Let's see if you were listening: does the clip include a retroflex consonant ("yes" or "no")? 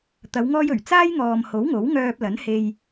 no